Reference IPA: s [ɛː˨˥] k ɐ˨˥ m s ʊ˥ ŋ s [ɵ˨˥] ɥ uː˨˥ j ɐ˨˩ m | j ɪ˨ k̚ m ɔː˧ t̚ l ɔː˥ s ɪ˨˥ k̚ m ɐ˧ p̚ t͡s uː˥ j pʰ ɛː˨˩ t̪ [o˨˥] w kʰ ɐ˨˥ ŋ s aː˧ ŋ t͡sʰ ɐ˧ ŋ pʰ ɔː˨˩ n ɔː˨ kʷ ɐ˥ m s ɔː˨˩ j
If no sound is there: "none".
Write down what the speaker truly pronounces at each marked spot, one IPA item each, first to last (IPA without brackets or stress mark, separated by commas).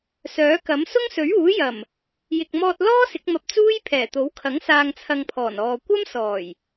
œː˨˥, ɵ˨˥, o˨˥